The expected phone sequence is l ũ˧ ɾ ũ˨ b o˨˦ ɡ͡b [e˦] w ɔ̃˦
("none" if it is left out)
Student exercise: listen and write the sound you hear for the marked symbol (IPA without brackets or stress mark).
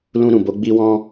i˦